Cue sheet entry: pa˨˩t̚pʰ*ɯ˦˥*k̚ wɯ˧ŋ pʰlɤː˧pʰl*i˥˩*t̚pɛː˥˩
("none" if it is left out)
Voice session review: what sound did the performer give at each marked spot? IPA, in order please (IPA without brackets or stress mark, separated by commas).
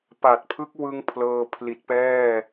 ɯ˦˥, i˨˩